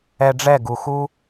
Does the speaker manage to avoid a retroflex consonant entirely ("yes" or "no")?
no